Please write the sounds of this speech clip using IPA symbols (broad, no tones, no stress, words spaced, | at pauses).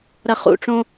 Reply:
ɾɐχṵʈ͡ʂõ